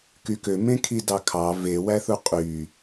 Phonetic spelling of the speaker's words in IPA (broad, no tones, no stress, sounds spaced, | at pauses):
k y k ø m ẽ kʰ i d ɑ kʰ ɑ v e w æ θ u qʼ y